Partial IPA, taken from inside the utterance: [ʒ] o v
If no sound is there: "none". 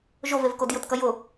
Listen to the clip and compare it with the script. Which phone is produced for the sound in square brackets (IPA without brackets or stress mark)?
ʒ